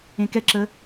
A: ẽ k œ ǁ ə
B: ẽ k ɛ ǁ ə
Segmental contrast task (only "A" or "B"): B